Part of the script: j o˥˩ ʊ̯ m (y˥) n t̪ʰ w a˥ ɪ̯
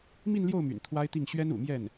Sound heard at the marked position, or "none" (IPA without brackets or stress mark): y̰˨˩